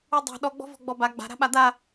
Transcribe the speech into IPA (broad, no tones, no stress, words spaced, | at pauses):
udˤe̤ ɗɔɡ͡bɔ̤vɔ̤ ɡ͡bɔba ɡ͡ba̤ɾa̤ ɓad̪a